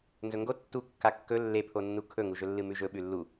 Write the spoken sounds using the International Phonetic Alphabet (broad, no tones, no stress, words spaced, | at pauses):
nzɵŋɡo tːu kːakːɵ lːepʰonːu kʰɵŋuʒɵlːɨ mʉʒɵɓʉ lːu